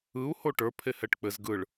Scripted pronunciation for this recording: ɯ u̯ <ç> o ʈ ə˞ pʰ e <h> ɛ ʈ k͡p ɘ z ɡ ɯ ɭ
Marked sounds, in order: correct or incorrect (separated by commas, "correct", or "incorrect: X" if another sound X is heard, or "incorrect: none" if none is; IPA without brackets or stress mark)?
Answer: incorrect: h, correct